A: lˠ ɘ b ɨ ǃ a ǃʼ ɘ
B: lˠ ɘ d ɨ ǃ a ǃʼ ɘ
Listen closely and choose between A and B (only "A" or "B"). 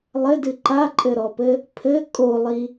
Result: B